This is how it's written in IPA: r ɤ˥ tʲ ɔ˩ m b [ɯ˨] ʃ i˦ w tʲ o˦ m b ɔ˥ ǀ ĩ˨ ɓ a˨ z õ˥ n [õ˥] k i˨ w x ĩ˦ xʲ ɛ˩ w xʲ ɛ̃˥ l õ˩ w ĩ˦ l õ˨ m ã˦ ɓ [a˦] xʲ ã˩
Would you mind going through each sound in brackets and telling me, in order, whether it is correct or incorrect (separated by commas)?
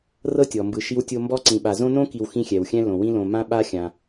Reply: correct, correct, correct